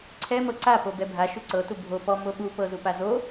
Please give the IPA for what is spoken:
ǀʰ ɛ m ɤ ǀ a p o b ɛ bʱ a ʃ u ǀ ɤ t u bʱ o p ɔ m o ɓ u p ɤ z u p a z o

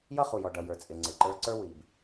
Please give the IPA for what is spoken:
j ʌ˥ χ u˩ j ɔ˩ ɖ ʌ˩ j ə˞˩ t͡sʼ ɪ˩ ŋ͡ǀ ɪ˩ ǃ ə˞˧ ǀ ə˞˥ w i˩ b

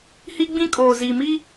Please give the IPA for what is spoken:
h i˦ ɡ͡b ĩ˦ kʼ oː˨ z iː˨ m i˦

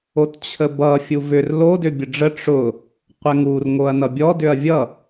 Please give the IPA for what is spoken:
o t t͡ɕʰ ə b ʌ fʲ u v ʏ r l o d ʏ bʲ ə ɖ͡ʐ ə ʈ͡ʂ ʊ | qʷ ɛ ŋ u r ŋ o ɐ̯ n ʌ bʲ ɔ d ʏ ɐ̯ vʲ ʌ

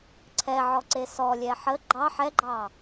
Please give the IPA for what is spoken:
ǀʰ ɛ ʕ ɔ ǀ e s ɔ lʲ ɛ ħ ə ɡ͡ǃ ɑ ħ ɛ ɡ͡ǃ ɑ

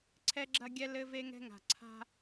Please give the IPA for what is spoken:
ǀʰ ɛ˦ ɡ͡ǁ ɐ˦ ɡʲ ɛ˦ l ɘ˦ v e˦ ŋ ɛ̤˦ ŋ a̤˨ ǀʰ a̤˦

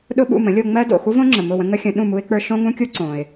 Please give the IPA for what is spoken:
ɗ ʊ˥ ɓ ṵ˥˩ m ə̃˩˥ lʲ o˧ ŋ͡m ɜ˥ d o̰˥˩ x u˥ v õ˥ ŋ͡ǁ ə˩ m ʊ˥˩ w ə̃˥ ŋ ə˥ xʲ ə̃˩˥ ɗ ũ˥˩ m u˥ ɪ̯ k͡p ə˞˥ ʃ õ˥ ŋ ũ˥ kʲ u˥ ǀ õ˩ ɪ̯

